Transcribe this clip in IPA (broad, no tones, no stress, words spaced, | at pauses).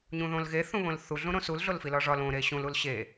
ɲũðõlɣe θũβõlθu ɮũɾõsul ɮolfilɒʐɒl õ ɾeɕũl ulɕe